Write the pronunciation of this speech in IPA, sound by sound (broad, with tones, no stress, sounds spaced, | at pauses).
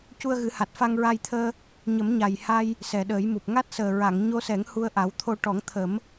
c u˧ ə̯ ɣ ɨ˨˩˦ h a˨˩ t̚ f a˧ ŋ ɹ a˧ j t̪ʰ əː˧ | ɲ ə˨˩˦ m ɲ a˨˩ j h a˧ j | s ɛ˨˩ ɗ əː˨˩˦ j m u˨˩ p̚ ŋ a˦˥ t̚ s əː˨˩ ɹ a˨˩˨ ŋ ɲ o˧ s ɛ˨˩˦ ŋ h u˧ ə̯ ʔ a˨˩˦ w t̪ʰ o˧ ʈ ɔ˨˩˦ ŋ t̪ʰ ə˨˩˦ m